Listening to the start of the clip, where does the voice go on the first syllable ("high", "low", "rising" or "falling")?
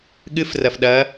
rising